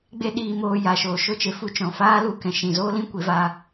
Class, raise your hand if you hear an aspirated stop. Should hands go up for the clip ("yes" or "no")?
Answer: no